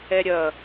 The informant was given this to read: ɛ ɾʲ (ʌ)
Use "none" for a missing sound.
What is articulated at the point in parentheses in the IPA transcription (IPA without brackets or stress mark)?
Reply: ʌ